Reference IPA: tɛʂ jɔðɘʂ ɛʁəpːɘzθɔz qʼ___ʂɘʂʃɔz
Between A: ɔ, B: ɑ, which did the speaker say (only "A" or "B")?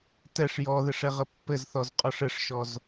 A